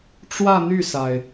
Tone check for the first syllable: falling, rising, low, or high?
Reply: falling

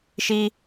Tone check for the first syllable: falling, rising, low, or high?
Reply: high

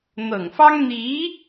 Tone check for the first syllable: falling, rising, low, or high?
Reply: low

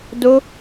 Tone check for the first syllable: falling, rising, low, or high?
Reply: high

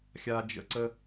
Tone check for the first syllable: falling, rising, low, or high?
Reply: high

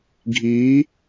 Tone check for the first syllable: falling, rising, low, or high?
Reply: rising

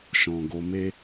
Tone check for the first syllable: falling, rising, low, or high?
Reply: low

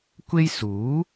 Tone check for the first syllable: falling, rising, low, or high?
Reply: high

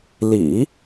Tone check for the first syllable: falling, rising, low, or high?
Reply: low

